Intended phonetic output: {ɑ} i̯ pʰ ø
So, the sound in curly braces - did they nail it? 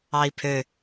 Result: yes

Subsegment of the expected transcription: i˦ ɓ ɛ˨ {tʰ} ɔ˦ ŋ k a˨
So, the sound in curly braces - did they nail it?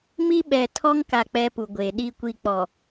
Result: yes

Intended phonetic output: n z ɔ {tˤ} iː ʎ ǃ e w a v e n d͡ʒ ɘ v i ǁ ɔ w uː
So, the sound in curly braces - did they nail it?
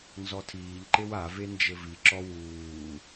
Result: no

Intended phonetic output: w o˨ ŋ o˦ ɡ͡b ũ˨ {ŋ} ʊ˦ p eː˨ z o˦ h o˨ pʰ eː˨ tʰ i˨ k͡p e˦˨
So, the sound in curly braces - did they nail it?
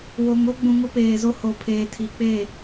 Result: yes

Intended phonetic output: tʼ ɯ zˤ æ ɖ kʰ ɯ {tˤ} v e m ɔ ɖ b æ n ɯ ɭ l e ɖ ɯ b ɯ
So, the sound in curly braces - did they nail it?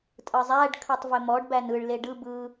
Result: yes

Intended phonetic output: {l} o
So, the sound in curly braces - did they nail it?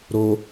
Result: no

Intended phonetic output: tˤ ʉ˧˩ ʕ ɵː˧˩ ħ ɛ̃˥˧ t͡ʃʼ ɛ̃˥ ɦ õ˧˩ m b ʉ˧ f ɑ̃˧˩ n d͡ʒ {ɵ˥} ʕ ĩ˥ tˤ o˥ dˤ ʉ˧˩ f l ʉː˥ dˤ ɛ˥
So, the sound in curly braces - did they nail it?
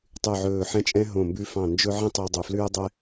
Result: yes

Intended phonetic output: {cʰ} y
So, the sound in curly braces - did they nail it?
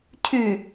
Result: yes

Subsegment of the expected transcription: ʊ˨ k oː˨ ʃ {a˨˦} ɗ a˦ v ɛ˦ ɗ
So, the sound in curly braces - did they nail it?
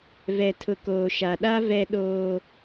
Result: no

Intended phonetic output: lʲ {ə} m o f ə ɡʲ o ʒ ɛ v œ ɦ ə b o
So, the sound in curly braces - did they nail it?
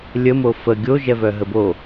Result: yes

